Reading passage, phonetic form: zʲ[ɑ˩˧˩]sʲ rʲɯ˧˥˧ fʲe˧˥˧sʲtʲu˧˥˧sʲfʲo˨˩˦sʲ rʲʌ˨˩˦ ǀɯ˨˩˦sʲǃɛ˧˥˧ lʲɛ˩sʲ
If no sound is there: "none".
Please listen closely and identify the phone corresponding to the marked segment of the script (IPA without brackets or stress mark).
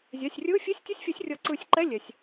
a˩˧˩